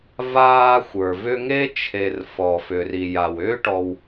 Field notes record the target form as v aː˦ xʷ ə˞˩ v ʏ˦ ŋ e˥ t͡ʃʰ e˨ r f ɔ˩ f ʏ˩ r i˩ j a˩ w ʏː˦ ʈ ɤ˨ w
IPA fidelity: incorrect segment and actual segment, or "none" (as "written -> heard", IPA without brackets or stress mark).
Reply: ɤ˨ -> ɔ˨